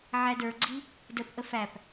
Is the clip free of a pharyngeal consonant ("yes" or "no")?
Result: no